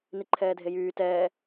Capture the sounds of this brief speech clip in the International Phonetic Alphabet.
niǃʰɛːdʱejyː tɛː

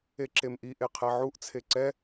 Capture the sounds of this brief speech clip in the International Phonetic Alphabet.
eǁemʔi ʔeqʰɛʕuʔ t͡sʰeǀɛ

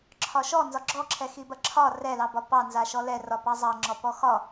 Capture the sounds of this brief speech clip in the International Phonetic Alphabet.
ǁʰɒʃɔ nzɒɡ͡ǁɔǁʰɛ xibɐǁʰɒ rɛlɑbɒ pɑnza ʃɔlɛrɒpɑ zˤɑŋ͡ǁɔpɔ xɒ

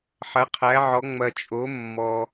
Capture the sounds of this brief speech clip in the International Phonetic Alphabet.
ħɐ˩˥qʰæ˩˥ʕɔ˩˥ ŋ͡mɐ˨t͡ʃʼo˩˥ mːɔ˨

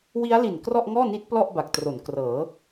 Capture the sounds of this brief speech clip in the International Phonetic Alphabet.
wi˦˥a̯li˨˩n krɔ˥˩ʔŋɔː˥˩ni˦˥t̚ plɔ˥˩ʔba˨˩k̚tro˩˦n krɤː˩˦

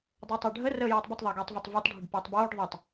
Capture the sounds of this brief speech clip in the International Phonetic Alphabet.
dˤɤːtˤəːɖʱə rəːjeːtˤbətˤ ðˤəːɡeːtˤvetˤvotˤ ɖʱəɖpeːtˤboːɖ ðˤetˤ

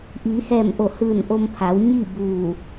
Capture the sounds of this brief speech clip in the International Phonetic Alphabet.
ʔiː˩˧hɛː˧˩mʔo˧˩ hɯː˧˩nʔo˧m pʰa˩˧wɲi˥˨buː˧˩

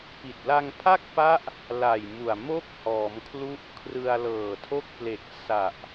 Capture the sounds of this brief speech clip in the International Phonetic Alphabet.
pi˨˩t̚ la˧ŋpʰa˥˩k̚pa˦˥ʔ | la˨˩jmu˨˩a̯ mo˥˩k̚hɔː˩˦mkʰlu˦˥ʔ kʰrɯ˧a̯lɤː˨˩tʰo˥˩k̚ple˨˩k̚ sa˨˩ʔ

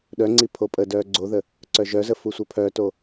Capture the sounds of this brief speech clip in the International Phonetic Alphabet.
ɗœŋ͡ǀi pʰopʼədœː ɡ͡ǀoðə | ǀœʒœzə fusʷəpʰœto

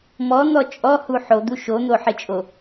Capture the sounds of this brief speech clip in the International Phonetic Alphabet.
mɔn̪ɔ t͡ʃʼɔhu ħod̪u ʃon̪oħɪt͡ʃʼo

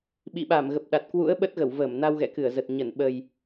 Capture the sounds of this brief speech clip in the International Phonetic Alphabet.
ɓḭ˧˨ɓa˧˩m ɣə˨˩p̚ɗa˨˩t̚kwṵ˧˥ə̯ ɓə˦˥t̚ɣə˧˩wvəː˧˩mna˧w ɣɛ̰˧˨kɨ˧˩ə̯zə˨˩t̚ ɲə˧˩n ɓə˨˩j

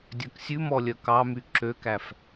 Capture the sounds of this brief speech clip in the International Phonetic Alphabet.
dʲœksʲʉmɔlʲœ kɑmy ǁøkæf

